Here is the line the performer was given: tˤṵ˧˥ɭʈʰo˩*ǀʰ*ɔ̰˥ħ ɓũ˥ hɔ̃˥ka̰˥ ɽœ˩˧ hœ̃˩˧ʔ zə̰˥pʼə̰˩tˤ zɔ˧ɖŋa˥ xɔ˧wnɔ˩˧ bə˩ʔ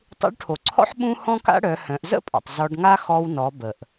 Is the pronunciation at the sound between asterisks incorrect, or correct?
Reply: correct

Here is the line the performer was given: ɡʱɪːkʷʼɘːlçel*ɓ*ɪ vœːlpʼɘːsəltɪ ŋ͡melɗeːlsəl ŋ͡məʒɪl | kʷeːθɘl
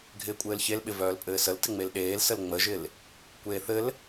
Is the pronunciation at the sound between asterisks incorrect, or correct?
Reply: correct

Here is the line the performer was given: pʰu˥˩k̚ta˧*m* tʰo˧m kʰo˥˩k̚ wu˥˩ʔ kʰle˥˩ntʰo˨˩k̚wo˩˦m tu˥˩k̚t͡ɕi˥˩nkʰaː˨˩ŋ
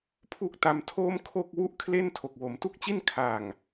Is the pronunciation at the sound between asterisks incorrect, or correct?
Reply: correct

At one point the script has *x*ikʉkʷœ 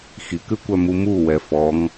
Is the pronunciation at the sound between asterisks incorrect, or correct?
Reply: correct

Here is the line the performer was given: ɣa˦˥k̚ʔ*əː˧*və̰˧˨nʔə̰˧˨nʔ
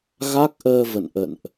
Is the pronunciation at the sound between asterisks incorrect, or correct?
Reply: correct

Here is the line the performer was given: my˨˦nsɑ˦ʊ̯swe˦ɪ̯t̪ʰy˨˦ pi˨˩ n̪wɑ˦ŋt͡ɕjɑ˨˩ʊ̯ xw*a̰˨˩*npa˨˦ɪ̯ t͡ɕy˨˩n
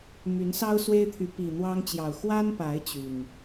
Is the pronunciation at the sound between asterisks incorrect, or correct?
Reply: incorrect: a˦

